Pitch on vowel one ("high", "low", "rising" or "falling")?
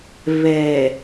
low